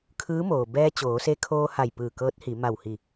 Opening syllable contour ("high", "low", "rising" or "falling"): rising